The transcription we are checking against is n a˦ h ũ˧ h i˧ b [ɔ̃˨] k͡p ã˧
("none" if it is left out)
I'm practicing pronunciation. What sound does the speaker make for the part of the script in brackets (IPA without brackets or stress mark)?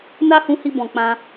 ɔ̃˨